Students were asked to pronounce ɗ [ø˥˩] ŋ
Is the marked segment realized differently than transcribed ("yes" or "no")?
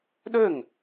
no